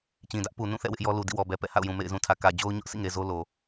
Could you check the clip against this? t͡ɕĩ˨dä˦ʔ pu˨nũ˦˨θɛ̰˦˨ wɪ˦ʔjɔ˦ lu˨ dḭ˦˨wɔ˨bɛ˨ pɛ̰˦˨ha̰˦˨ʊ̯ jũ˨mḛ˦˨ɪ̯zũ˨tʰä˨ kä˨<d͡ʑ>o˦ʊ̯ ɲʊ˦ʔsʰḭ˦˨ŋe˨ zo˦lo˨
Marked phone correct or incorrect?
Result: correct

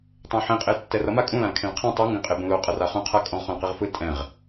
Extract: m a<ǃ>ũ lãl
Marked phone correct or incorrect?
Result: incorrect: kʼ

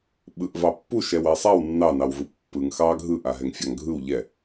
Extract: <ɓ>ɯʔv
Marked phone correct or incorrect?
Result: correct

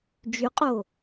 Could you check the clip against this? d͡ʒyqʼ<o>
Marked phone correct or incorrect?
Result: correct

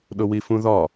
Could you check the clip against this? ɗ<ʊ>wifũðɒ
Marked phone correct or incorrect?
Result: correct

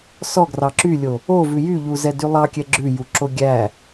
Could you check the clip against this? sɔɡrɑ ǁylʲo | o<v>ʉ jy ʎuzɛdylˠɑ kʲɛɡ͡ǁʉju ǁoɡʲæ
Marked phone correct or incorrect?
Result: correct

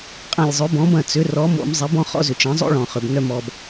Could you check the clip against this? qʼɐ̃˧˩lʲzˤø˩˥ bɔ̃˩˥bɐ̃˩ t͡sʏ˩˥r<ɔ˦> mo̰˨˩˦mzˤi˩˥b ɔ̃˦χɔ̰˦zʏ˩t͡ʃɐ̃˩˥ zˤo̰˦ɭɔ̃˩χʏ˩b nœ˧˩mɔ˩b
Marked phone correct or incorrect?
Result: incorrect: ɔ˩˥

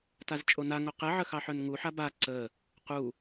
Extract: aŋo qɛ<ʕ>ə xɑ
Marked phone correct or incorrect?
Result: correct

